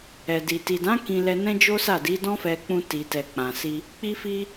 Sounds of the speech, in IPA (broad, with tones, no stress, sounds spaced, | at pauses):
ɛ˨ d i˨ t i˨ d ã˨˦ k ĩ˧ l ɛ˧ n ɛ̃˦ d͡ʒ o˦ s a˦˨ d i˨˦ d ɔ̃˦ f ɛ˧ k͡p ũ˧ t i˨ t ɛ˨ k͡p ã˨ s i˧ | k͡p i˧ f i˧